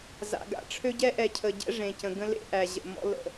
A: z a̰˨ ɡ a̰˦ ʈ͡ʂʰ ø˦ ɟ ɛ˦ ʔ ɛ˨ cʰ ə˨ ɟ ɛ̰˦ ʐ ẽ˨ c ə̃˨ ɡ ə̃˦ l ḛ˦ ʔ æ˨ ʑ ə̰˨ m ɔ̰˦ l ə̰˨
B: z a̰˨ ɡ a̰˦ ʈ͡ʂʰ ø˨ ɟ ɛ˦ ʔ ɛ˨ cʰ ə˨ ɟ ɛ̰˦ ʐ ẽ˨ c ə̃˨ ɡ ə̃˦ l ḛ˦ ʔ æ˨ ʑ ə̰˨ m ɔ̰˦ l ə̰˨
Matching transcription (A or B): A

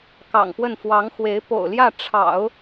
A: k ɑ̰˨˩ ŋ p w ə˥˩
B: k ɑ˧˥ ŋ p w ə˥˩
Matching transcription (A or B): A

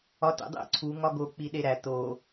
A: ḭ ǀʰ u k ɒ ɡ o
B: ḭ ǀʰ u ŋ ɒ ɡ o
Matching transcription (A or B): B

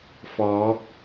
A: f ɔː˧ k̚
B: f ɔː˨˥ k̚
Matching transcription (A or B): B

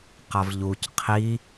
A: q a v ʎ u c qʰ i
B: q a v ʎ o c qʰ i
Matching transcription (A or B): A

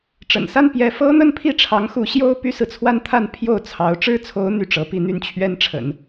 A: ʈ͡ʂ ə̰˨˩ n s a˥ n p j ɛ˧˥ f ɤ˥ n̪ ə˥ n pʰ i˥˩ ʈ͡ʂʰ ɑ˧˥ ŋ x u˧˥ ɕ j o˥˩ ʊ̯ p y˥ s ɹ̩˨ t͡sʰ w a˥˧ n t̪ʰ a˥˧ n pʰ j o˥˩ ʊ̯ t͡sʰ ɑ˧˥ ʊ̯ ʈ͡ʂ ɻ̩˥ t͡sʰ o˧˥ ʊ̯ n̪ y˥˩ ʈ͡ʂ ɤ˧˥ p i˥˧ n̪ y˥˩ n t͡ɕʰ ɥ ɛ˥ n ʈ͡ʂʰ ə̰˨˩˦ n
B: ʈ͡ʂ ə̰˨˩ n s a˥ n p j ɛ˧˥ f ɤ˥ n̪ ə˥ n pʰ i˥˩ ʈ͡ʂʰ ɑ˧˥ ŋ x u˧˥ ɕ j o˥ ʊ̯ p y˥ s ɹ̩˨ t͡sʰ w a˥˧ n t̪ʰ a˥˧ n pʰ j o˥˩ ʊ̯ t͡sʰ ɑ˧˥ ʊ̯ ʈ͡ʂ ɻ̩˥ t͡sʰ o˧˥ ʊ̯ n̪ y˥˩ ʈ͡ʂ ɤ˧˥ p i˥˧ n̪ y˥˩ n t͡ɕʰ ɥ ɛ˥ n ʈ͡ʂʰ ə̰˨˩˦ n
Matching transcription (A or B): B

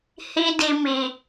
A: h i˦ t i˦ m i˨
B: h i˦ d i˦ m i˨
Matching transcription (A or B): B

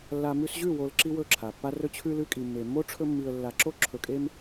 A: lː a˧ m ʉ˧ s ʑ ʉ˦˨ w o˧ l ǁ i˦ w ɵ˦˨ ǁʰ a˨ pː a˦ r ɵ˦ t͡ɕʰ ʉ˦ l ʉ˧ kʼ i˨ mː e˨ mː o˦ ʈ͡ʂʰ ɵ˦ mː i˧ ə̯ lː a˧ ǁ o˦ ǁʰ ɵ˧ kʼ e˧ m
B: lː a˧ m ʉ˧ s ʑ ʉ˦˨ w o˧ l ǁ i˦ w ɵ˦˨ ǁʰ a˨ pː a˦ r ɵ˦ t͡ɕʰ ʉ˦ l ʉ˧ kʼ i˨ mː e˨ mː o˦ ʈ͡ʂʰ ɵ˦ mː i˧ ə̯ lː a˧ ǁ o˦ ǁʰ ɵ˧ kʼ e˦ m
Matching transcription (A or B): B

